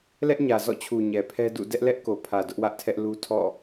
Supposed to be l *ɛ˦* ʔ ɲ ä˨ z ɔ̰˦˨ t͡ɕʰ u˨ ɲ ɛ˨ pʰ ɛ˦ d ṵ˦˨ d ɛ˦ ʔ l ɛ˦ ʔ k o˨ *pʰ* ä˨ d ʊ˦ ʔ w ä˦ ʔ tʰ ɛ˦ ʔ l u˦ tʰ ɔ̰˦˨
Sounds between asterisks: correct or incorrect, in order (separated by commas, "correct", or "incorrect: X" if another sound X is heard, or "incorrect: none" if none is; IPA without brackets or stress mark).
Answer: correct, correct